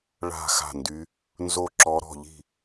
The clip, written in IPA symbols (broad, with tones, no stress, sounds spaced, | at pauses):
ɭ a̤˥˩ x a̤˥˩ n d y˧˥ | n z o˥˩ ǁ ɔ˧˥ ɾ ɔ̤˥˩ ʎ i̤˥˩